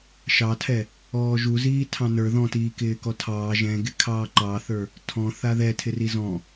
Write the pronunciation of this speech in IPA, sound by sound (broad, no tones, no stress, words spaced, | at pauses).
ʃɑtʰɛ | ɔːʒuziː tʰɑ̃nə˞ ðɔ̃tiː kɪːkɔtʰɑː ʒɛ̃ɡɪ kʰɑːǃɑθə˞ | tʰɔ̃ θaðɛtʰɪ rizɔ̃